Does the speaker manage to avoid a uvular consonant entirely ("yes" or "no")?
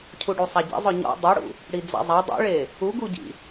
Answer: yes